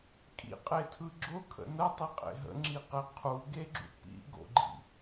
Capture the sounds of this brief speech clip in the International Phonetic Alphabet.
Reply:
kʼ ḭ qʼ e tʰ ɯ ɡ͡ǁ ʊ kʰ ə̰ n ə tˤ i qʼ ḛ ɦ ə̰ ŋ͡ǁ i q e qʰ u ɡ e ɡ͡ǁ ṵ p ḭ ɡ o̰ ɡ͡ǃ ḭ

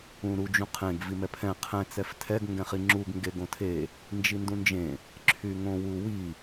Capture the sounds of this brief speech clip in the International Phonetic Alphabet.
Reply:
ũ ɾ u d͡ʒ ũ qʰ ẽ ɡ v i m ɛ pʰ ɛ̃ qʰ ɛ̃ t͡s ɛ f tʰ ɛ ɡ ŋ ɡ ɛ̃ χ i ŋ͡ǁ u ɡ ŋ ɡ e ɡ õ tʰ e | n d͡ʒ i n d ũ n d͡ʒ ẽ | ǁʰ y ŋ õ w u w i

